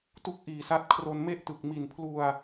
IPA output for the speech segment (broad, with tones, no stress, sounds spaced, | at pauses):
t u˥˩ k̚ ʔ iː˨˩ s a˦˥ t̚ kʰ r o˧ n m e˥˩ ʔ t ɯ˨˩ k̚ m i˨˩ n pʰ l u˧ a̯